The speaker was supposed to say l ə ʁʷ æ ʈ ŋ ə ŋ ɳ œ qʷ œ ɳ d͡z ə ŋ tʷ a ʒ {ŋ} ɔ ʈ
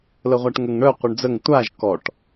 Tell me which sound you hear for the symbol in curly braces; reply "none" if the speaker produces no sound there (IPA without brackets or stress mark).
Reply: k